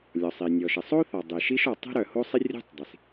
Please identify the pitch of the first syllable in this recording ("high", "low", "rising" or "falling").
low